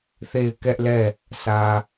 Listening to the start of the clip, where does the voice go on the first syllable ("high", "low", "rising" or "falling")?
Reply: falling